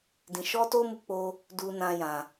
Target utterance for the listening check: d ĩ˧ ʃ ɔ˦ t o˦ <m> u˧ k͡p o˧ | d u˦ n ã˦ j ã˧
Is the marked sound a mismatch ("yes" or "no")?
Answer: no